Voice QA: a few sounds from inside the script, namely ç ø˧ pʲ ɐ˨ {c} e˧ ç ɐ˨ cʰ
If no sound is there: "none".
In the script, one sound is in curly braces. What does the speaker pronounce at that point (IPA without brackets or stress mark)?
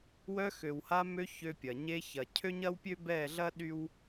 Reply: ɲ